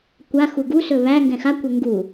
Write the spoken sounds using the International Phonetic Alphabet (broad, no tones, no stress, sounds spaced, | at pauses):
kʷ a x u ɡ u s ɵ β æ ŋ ɡ ɛ̃ x a kʷ ɛ ŋ ɡ u